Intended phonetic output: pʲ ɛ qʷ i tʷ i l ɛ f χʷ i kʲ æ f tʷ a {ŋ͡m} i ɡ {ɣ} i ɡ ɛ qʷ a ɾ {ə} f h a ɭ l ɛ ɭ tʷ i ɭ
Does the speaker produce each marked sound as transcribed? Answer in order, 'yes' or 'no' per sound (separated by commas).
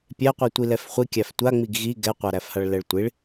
yes, yes, no